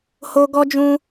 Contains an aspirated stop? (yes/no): no